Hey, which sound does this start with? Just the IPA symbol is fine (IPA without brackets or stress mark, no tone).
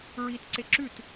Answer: ɹ